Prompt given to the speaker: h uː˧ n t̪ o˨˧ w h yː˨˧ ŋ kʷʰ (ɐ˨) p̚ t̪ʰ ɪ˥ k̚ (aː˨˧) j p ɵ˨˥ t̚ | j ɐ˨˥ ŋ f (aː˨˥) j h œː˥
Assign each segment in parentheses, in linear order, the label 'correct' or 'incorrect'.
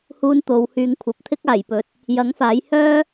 correct, incorrect, correct

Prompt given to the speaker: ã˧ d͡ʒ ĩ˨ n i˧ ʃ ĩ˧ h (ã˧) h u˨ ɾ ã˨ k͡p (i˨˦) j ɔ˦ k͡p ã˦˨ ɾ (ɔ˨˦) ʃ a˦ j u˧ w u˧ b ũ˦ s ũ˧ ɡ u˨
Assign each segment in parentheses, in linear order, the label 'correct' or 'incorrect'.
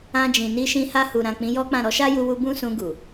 incorrect, incorrect, correct

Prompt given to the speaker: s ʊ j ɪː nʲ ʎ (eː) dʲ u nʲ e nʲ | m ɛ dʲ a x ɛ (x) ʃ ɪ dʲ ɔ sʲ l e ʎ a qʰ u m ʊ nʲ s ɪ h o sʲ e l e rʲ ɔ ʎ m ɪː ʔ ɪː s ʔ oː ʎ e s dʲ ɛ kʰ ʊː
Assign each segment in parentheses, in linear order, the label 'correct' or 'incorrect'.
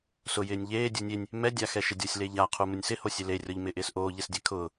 correct, incorrect

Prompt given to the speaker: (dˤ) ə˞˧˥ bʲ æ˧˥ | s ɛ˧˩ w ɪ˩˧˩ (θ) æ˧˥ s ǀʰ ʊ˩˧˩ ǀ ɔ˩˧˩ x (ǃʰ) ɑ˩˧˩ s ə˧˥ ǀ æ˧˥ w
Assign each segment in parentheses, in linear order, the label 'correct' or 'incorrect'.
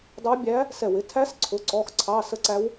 correct, incorrect, incorrect

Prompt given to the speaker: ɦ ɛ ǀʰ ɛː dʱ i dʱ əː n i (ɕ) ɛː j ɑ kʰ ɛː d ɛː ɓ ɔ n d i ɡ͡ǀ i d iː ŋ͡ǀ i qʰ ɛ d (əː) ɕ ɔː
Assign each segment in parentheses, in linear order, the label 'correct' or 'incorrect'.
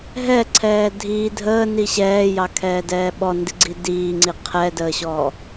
correct, correct

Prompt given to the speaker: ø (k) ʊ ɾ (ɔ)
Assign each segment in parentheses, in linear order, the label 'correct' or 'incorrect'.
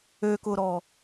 correct, correct

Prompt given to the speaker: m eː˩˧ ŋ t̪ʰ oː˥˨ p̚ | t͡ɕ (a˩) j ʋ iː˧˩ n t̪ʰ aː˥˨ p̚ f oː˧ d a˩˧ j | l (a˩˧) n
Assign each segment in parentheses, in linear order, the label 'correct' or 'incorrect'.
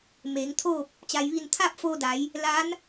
correct, incorrect

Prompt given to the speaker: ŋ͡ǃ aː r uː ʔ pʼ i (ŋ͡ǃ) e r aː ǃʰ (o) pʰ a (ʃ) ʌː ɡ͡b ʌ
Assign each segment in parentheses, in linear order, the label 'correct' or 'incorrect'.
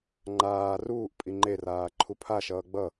correct, incorrect, correct

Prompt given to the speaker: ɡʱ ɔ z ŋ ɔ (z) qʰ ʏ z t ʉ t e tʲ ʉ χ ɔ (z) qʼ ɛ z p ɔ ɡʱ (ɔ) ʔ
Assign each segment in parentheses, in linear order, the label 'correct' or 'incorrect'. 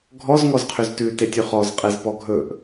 correct, correct, incorrect

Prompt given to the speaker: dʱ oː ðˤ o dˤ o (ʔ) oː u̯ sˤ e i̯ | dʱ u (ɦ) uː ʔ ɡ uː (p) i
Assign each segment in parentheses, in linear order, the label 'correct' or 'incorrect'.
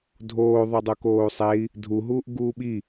incorrect, correct, incorrect

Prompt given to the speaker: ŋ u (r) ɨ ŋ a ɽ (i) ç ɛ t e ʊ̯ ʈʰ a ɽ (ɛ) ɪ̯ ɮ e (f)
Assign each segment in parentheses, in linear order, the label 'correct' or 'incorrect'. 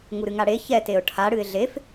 incorrect, incorrect, incorrect, correct

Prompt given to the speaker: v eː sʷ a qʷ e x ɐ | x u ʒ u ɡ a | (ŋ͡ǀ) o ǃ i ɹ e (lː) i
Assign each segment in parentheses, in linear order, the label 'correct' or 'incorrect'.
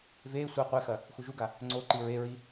correct, incorrect

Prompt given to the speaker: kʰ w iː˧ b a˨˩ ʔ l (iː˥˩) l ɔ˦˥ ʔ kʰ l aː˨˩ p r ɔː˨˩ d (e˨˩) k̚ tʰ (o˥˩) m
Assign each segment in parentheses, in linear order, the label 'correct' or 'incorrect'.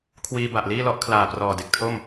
correct, correct, correct

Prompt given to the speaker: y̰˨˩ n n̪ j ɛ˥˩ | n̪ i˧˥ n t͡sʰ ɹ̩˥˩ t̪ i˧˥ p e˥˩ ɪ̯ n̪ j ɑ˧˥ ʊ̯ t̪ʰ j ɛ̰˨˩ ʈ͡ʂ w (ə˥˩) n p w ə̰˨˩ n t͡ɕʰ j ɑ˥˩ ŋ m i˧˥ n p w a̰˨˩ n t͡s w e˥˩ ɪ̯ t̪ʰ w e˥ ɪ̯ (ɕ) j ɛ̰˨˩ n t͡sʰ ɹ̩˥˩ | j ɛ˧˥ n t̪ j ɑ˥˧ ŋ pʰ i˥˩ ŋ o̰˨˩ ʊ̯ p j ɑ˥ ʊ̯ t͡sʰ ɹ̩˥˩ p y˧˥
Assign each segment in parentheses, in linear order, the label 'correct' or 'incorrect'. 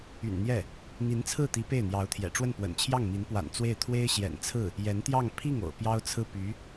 correct, correct

